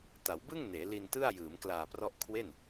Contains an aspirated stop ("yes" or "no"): yes